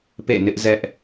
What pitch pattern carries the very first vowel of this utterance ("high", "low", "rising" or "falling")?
falling